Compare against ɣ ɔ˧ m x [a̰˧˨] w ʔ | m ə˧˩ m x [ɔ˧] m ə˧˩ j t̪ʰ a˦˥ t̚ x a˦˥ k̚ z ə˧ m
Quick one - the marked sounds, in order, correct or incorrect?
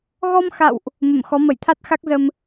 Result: correct, incorrect

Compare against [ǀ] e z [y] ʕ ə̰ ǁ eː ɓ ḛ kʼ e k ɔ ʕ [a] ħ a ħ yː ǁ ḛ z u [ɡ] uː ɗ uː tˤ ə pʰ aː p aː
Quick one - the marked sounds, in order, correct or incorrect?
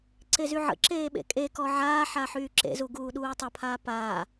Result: correct, correct, incorrect, correct

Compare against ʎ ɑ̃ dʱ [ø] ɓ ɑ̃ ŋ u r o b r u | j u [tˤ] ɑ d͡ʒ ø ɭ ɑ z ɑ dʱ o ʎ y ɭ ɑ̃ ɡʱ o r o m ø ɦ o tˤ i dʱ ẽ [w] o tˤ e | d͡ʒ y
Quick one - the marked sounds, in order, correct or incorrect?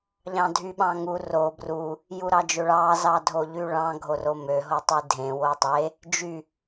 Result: incorrect, incorrect, correct

